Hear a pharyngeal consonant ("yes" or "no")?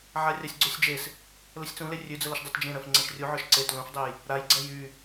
yes